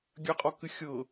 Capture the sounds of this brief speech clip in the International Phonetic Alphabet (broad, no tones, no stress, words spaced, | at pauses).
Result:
ɡʲɐqʼɔkɨ xʲɤ